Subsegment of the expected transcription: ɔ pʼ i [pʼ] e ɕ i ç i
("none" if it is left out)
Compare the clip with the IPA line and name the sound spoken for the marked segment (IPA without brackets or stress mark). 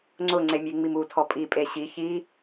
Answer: pʼ